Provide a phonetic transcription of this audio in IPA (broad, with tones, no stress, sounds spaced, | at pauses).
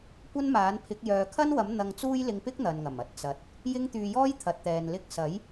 kʷ ɐ˥ n m aː˨˥ n pʰ ɪ˨˥ k̚ j œː˨ kʰ ɐ˥ n w ɐ˨˥ m n̪ ɐ˧ ŋ t͡s uː˥ j l ɪ˧ ŋ p ɪ˥ k̚ n̪ ɐ˨ n ŋ ɐ˨˩ m ɐ˧ t̚ t͡s ɐ˨ t̚ | j ɪ˥ ŋ t̪ yː˧ j ɔː˥ j t̪ʰ ɐ˨ t̚ t̪ ɛː˨ n l ɪ˧ k̚ s ɐ˨˥ j